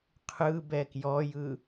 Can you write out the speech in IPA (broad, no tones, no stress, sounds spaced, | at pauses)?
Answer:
qʰ ɯ b ɛ k j ɔ j ɯ